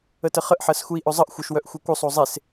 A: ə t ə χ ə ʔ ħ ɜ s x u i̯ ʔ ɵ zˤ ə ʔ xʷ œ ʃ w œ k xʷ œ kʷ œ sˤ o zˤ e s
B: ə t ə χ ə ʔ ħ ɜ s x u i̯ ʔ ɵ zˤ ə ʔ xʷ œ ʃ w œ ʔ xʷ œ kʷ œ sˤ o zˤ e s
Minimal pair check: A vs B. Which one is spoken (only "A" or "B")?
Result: B